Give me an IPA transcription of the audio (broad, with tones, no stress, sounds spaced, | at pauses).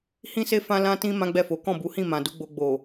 h ĩ˦ s e˦ f ã˦ l ã˦ t ĩ˦ m ã˦ ɡ͡b ɛ˦˨ f o˨˦ k ɔ̃˦˨ b u˨˦ h ĩ˦˨ m ã˨ d u˨˦ ɡ͡b o˧ ɡ͡b o˨